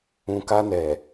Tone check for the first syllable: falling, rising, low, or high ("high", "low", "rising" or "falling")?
low